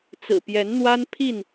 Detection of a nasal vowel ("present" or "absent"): absent